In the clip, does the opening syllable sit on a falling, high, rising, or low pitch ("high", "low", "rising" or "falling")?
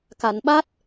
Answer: low